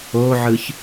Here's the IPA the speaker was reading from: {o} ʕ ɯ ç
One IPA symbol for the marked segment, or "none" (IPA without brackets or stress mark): o